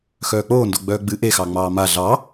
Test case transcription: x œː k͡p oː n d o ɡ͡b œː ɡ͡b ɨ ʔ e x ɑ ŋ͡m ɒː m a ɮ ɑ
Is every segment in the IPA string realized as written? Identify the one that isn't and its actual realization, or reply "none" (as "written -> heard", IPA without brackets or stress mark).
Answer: ɒː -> ɑː